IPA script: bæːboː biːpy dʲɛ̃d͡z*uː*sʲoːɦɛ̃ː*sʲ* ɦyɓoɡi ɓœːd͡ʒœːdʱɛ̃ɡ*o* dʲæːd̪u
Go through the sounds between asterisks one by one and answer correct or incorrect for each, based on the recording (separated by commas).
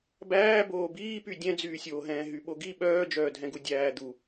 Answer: incorrect, incorrect, incorrect